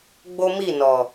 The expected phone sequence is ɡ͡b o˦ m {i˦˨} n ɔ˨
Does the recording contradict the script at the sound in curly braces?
no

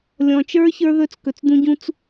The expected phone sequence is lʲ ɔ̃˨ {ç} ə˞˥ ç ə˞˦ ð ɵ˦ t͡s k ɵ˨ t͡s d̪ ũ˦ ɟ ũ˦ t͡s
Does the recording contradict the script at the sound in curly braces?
yes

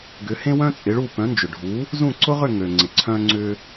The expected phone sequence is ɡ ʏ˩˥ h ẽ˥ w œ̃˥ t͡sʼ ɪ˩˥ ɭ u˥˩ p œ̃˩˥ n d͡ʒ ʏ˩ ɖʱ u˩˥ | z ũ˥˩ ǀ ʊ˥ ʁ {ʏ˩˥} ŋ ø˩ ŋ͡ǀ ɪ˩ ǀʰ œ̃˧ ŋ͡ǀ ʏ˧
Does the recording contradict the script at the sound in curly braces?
yes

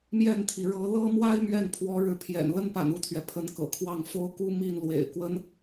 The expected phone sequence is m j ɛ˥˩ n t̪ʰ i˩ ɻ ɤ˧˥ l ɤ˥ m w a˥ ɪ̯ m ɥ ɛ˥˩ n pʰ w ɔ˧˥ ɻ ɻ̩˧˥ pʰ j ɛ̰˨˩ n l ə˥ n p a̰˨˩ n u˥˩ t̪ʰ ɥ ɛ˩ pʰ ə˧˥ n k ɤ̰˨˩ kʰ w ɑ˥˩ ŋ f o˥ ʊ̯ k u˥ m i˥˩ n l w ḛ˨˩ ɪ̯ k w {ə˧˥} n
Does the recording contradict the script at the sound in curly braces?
yes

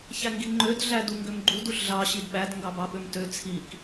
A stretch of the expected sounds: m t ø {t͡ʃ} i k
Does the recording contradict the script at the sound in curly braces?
yes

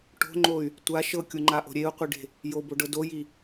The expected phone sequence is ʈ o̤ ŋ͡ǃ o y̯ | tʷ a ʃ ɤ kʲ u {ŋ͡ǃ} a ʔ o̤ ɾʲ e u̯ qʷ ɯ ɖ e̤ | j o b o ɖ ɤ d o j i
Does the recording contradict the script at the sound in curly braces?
no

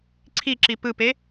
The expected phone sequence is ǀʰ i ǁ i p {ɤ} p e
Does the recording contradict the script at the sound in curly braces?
yes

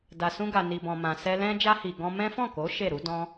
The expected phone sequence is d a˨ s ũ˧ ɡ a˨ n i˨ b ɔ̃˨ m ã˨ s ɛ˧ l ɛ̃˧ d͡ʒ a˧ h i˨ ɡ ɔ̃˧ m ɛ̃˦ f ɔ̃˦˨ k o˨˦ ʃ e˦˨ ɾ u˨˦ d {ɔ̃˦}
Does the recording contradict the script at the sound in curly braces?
no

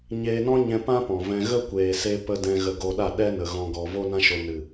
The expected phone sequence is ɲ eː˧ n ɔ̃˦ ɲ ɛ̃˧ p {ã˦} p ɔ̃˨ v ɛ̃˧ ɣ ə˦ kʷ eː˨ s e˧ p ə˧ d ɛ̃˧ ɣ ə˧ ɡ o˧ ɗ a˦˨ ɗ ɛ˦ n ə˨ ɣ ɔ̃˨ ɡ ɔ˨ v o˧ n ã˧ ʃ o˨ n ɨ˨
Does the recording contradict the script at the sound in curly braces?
no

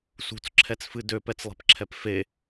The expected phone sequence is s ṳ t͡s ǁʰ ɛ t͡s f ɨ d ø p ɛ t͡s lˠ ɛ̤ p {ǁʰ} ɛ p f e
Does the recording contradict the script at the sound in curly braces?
no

